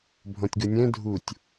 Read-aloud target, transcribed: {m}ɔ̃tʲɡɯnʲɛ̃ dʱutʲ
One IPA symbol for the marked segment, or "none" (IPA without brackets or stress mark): bʱ